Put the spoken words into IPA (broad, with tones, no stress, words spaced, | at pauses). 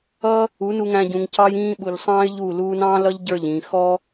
ʌ˧ | u˨˦nu˧ŋæ̃˧ɟũ˨ŋ cɑ˧jĩː˧ ɓu˨ʎsˤɑ̃ː˦ɪ̯ʎu˦˨ luː˧nɑ̃ː˦lʌ˦ʎ ɟə˞˦˨ʎĩː˨ xɔ˦